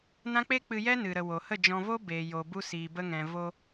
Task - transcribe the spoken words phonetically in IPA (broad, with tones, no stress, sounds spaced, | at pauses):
n ã˦ k͡p e˦ k͡p ɨ˧ j ɛ˦ n ɨ˨ ɾ ə˨ w o˨ h ə˦˨ d͡ʒ ɔ̃˧ v o˦ b e˨ j o˨ b u˧ s iː˨ b ə˧ ŋ ɛ̃˨ v o˧